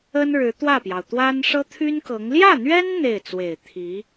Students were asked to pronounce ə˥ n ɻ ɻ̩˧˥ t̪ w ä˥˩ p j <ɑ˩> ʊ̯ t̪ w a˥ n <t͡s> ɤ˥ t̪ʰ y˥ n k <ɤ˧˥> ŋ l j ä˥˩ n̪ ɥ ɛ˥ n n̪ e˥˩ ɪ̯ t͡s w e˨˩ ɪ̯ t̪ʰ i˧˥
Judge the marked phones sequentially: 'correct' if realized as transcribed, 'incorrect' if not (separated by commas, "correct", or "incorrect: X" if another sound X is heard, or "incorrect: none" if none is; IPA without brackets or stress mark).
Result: correct, incorrect: ʂ, correct